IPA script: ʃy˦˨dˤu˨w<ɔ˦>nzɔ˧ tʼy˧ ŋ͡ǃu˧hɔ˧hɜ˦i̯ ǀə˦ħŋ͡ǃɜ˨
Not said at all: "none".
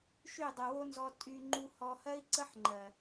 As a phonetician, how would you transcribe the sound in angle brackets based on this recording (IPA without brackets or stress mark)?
o˦